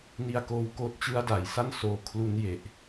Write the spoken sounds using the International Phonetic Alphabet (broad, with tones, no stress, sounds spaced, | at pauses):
n i˧ a̯ k oː˧ w k oː˦˥ t̚ t͡ɕ ɯ˦˥ a̯ d a˩˦ j s a˥˩ n s oː˧ kʰ l u˦˥ n j e˨˩ ʔ